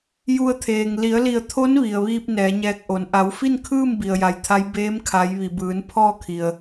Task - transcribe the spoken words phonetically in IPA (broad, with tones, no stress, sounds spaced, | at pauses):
j u˧ ə̯ t̪ʰ eː˩ ŋ l i˩˧ ə̯ l i˧˩ ə̯ t̪ʰ o˧˥ n ʋ i˩ ə̯ ʋ iː˧ p̚ n ɛː˩˧ ɲ ɛː˧ k̚ ʔ o˩˧ n ʔ a˩˧ w f i˥˨ n kʰ ɯː˥˨ m b i˩ ə̯ j a˩ j t̪ʰ a˧˥ j b eː˧˥ m kʰ a˩˧ j ʋ i˩ b ɯː˩˧ n pʰ ɔː˥˨ kʰ i˩ ə̯